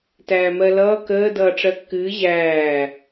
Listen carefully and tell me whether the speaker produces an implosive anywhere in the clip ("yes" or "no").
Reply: no